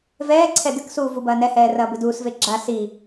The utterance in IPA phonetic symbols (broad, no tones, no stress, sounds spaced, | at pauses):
v ɛː ǀʰ ɛ d ɨ k s uː v u b ɐː n ɛ h ɛː r ɐː b ɨ d uː s v e ɡ͡ǁ a s i